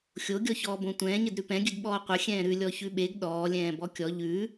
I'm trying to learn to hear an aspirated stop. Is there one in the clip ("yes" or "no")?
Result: no